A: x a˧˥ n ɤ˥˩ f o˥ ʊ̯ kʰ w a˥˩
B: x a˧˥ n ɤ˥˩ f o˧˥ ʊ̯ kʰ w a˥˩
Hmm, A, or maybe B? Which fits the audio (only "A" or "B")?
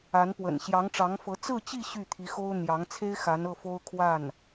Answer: A